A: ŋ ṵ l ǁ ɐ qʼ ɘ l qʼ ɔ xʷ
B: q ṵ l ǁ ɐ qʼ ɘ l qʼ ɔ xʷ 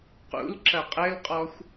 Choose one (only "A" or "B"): B